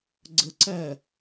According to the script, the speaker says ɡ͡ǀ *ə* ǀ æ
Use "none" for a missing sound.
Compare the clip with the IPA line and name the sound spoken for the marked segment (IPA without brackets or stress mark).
ə